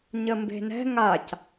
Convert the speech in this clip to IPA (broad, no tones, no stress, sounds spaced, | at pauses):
ɲ ə m b e̤ n ɛ̤ ŋ a c